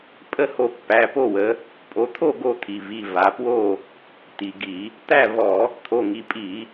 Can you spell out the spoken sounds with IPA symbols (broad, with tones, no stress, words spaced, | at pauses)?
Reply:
pʼə˥˨ho˧ pːæ˩˧˩po˥˨wə˩˧ | pʼo˩˧t̪ʰo˥˨ ɡo˥˨ t̪ʰi˩ vi˩˧˩va˩˧pwo˥˨ | t̪i˩ɡi˧˩˧ | t̪æ˥˨vɔ˧˩˧ | t̪ʰo˩˧˩ŋi˩˧˩pʼi˧˩˧